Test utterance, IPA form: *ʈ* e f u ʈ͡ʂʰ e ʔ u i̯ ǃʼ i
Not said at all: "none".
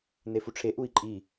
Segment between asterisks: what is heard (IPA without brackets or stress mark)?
n